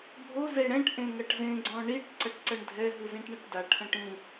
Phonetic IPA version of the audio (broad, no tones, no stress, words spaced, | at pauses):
bʱoze ɽɛ̃ʈʔẽ ŋɐʈzẽɡ͡ǀɔ̃ ɳiʈ ǀɐʈǀɐɳdʱɛɦɯ zĩʈɳɐʈdaʈʰɐ̃ʈ ĩ